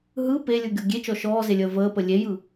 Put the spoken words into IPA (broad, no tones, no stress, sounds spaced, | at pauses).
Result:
ɦ ɯ p e lʲ ɯ ɡʲ o ɡʲ e t͡ʃ ɔ ʃ ɔː z e lʲ əː v əː p ə lʲ e j ɯ